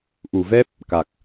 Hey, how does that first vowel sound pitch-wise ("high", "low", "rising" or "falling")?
low